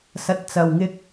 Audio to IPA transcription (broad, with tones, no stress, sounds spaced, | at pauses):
s ɐ˨ t̚ t͡s ɐ˨ w ŋ ɪ˧ k̚